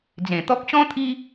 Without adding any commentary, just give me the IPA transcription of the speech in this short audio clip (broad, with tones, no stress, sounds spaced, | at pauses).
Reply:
d͡z ẽ˨˩ t̪ ɔ˦ k̚ ɕ ɔ̃˦ t̪ʰ i˦